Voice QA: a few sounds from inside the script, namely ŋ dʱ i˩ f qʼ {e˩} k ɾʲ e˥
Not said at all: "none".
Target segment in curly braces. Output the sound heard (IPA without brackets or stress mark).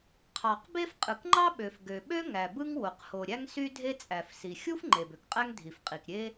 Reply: i˩